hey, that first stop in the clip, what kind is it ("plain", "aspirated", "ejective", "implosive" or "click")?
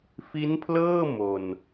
aspirated